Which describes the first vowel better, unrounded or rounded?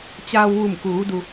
unrounded